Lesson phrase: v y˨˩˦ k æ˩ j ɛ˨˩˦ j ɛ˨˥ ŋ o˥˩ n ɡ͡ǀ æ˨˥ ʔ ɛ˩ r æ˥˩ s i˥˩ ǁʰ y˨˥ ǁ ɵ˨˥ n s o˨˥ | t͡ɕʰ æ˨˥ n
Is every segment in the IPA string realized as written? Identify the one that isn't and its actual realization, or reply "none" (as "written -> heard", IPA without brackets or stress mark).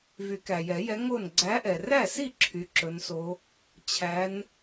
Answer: none